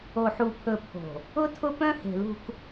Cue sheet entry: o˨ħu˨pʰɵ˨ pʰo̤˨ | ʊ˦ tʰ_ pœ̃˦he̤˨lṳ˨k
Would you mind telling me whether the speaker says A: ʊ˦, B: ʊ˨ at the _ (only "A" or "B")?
A